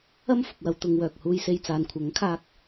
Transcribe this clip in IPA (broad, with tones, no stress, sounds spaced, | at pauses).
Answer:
ɐ˥ m f ʊ˨ k̚ w ɐ˨˧ w t̪ ʊ˨˧ ŋ w œː˨ k̚ h uː˧ j s e˧ j t͡s aː˨ n kʷʰ ɐ˨˥ ŋ kʰ aː˧ k̚